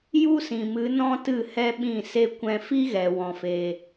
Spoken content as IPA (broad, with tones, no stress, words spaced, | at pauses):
ju˦sĩ˨mɨ˨˦ nɔ̃˦tɨ˦˨ hɛ˦ɓĩ˦˨se˦ kʷɛ̃˧fi˦ɣɛ˨ wɔ̃˧fe˧